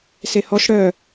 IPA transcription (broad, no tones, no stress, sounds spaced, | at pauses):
s e h ɔ ʃ ɽ œ